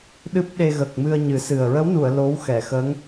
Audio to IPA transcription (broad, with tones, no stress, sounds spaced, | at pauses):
ɗ ɨ˦˥ p̚ ɗ e˧ ɣ ə˨˩ k̚ m ɨ˧ ə̯ ɲ ɨ˨˩˦ s ɨ˨˩ ə̯ ɹ ə˧˥ w n u˨˩˨ ə̯ l o˧˥ w x ɛ˨˩˨ x əː˧˥ ŋ